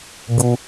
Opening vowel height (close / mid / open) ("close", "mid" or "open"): close